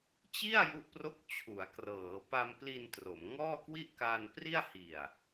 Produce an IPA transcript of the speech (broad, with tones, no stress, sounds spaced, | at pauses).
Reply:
t͡ɕ i˥˩ a̯ j u˥˩ ʔ p r o˥˩ k̚ t͡ɕʰ u˩˦ a̯ k r ɤː˩˦ p a˧ m p l i˧ n t r o˩˦ m ŋ ɔː˥˩ k w i˥˩ ʔ k aː˧ n p r i˥˩ a̯ h i˨˩ a̯